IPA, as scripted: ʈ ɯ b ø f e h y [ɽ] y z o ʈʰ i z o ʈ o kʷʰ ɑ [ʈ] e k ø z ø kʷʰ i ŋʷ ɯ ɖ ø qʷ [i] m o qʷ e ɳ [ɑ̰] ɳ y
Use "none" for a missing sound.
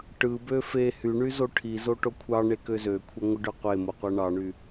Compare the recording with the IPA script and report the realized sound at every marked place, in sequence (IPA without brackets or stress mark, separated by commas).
ɳ, ɳ, e, ɑ